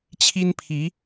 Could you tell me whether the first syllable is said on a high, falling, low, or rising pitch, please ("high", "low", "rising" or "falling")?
high